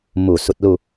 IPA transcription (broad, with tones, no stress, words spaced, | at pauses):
mu˧˩ su˧t̚lu˥˨